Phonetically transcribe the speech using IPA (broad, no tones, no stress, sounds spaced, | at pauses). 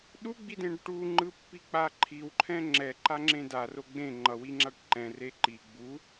ɗ u ɡ͡b i d ẽ ɖ ʈ u ŋ͡ǃ ɯ pː i k͡p a ǃʰ i w ǃʰ ɛ̃ ŋ͡ǁ ɛ ǃ a ŋ͡ǁ ẽ d a r o ɡ͡b ẽ ŋ͡ǃ ʌ w i ŋ͡ǁ a ʈ ǃ ɛ̃ r e ǃ i ɡ͡b u